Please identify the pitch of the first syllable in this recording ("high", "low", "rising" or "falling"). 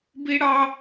high